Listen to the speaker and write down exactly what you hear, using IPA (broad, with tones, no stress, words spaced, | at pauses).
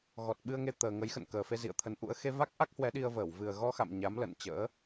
ɣɔ˨˩t̚ɓɨ˧ə̯ŋe˧ t̪əː˨˩ŋə˨˦j xə̰˧˨nkəː˨˩fe˧ zḭ˧˨ə̯t̪ʰə˨˦n ʔṵ˧˥ə̯ xe˧va˦˥k̚ʔa˦˥k̚hwɛ˨˦ ɗi˧ə̯vəː˧˩w vɨ˨˩ə̯ ɣɔ˧xa̰˧˨m ɲa˨˦m lə̰˧˨nt͡ɕə̰ː˧˥